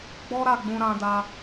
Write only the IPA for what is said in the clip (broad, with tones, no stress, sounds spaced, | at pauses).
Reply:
ɡ͡b ɔ˦ ɾ a˦˨ ɡ͡b ũ˧ ɾ ã˧ d a˧